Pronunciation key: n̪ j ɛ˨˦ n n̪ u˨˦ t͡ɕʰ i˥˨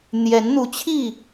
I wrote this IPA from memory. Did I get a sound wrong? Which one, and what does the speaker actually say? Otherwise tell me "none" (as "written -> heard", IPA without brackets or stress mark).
none